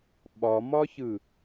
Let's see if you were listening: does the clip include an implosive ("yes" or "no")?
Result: yes